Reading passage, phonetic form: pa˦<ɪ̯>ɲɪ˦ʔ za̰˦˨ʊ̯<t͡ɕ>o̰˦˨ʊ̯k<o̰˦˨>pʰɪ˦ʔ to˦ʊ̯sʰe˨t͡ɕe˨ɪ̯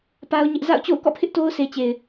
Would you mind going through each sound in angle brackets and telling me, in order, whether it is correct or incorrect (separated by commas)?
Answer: incorrect, correct, incorrect